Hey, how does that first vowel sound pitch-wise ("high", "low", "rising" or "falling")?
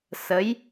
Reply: rising